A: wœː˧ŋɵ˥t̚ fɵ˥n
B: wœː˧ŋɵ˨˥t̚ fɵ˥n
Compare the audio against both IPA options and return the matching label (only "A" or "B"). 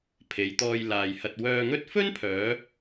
A